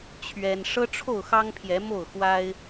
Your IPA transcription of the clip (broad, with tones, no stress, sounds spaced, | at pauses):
t͡ɕʰ ɥ ɛ˦ n ʂ ɤ˦ ʈ͡ʂʰ o˥˨ ʊ̯ x ɑ˦ ŋ pʰ j ɛ˨˦ m o˥˨ ʊ̯ x w a˦ ɪ̯